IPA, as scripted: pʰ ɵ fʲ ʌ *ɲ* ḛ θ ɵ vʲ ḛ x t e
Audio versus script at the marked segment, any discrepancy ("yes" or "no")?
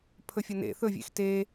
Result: yes